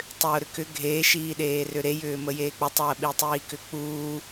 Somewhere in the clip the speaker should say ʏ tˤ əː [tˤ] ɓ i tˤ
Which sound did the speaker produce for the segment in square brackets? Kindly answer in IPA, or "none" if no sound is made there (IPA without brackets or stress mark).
none